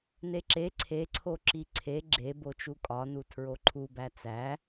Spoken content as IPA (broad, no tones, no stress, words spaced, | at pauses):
neǁe ǀʰeǀʰo ǁiǀʰe ɡ͡ǁe bot͡ʃukʼɒnu tʰɹoǃʰubæ t͡sæ